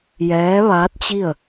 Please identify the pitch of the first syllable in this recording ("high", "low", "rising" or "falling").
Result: rising